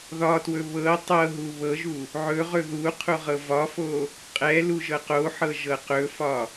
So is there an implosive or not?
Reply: no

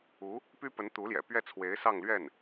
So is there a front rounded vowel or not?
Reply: yes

